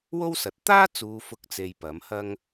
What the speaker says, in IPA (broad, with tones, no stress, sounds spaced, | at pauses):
w o˥ w s ɐ˨ t̚ t̪ aː˥ t͡s uː˨ f ʊ˨˥ k̚ t͡s e˧ j p ɐ˨˥ m h ɐ˥ ŋ